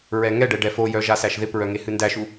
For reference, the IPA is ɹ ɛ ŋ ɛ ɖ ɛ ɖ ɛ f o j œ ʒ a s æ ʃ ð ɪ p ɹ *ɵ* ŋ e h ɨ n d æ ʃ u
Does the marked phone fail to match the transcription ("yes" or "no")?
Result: yes